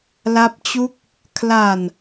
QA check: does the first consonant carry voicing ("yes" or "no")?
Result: yes